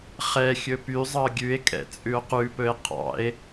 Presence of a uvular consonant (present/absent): present